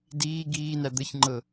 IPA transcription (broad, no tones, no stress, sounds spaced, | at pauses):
d iː ɡ iː n æ d̪ ə ç ŋ͡ǃ ɤ